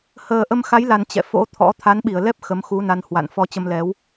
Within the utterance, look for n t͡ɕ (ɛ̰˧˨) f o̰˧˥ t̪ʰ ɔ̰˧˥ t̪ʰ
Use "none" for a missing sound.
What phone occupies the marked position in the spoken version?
ɛ̰˧˨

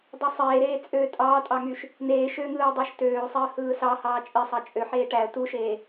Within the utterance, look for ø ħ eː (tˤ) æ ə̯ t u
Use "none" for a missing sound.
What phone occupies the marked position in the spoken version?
ʈ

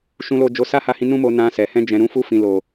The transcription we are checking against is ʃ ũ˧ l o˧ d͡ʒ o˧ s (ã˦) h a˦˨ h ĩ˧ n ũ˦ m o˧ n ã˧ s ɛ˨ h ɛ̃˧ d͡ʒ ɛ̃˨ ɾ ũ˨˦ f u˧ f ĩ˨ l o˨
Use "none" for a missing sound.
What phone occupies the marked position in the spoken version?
a˦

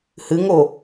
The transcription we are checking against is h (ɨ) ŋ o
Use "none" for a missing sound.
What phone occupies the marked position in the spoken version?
ɨ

